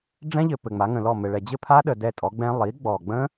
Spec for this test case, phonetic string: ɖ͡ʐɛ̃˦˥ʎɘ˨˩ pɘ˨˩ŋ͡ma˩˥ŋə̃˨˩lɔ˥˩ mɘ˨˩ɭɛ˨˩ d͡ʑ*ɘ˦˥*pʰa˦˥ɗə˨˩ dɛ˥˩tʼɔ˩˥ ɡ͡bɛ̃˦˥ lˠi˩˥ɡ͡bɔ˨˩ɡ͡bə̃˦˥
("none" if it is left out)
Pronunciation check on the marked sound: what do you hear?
ɘ˥˩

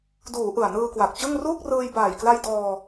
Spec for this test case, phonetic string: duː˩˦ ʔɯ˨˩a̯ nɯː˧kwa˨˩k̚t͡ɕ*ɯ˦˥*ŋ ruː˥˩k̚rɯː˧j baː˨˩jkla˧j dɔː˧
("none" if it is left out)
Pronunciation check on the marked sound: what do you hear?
ɯ˥˩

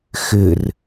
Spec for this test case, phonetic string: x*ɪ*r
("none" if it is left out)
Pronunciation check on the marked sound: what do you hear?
ɪ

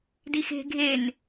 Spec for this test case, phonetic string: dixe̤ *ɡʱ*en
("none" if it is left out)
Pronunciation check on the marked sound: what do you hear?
ɡʱ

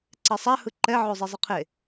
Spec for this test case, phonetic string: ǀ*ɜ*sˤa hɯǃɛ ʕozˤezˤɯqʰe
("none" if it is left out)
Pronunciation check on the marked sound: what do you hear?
ɛ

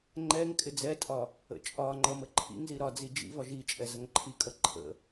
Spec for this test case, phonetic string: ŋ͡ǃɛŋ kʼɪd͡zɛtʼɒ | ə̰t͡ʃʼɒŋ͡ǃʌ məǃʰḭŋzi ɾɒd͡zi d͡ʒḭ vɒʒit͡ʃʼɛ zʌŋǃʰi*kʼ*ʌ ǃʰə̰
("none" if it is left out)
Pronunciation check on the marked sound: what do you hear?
kʼ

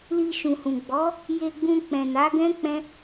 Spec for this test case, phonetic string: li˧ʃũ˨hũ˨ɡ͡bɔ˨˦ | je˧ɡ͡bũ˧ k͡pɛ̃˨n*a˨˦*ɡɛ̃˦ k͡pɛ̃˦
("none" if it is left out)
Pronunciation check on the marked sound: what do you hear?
a˨˦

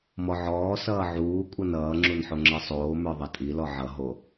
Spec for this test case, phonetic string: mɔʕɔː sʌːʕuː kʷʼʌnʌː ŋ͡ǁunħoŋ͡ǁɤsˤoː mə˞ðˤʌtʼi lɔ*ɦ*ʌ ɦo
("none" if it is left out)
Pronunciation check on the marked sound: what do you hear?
ʕ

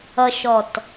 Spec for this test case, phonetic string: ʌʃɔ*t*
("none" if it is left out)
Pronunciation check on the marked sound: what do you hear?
t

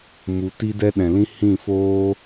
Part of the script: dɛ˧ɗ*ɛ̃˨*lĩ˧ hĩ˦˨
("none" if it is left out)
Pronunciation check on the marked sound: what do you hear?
ɛ̃˨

